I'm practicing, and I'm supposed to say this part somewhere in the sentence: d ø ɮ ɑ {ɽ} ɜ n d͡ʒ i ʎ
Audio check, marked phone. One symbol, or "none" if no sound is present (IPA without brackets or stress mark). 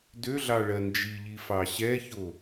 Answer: ɭ